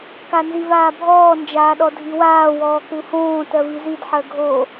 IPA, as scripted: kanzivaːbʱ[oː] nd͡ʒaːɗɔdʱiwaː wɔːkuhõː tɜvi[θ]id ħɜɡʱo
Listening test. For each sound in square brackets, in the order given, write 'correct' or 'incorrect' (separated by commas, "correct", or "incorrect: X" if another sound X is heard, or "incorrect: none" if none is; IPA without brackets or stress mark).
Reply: incorrect: ɔː, incorrect: z